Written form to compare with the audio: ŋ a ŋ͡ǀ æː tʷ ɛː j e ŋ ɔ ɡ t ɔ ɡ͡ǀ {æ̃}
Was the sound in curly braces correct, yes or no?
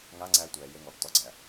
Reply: no